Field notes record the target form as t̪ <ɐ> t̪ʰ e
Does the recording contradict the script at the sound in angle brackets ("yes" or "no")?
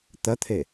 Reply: no